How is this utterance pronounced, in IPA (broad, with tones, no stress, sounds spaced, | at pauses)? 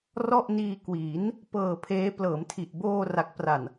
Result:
r ɔ˥˩ ʔ n iː˧ k w iː˩˦ n | p ɤː˨˩ pʰ eː˦˥ p l ɤː˩˦ m tʰ i˨˩ ʔ b oː˧ r a˦˥ k̚ p r a˨˩ n